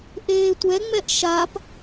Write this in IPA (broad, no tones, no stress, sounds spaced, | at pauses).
ʔ eː tʷ ɛ ŋ͡m ɛ ʔ ʃ a p